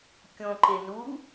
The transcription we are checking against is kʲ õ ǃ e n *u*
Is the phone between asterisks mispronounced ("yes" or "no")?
no